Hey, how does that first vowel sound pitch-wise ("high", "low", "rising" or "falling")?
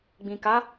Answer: low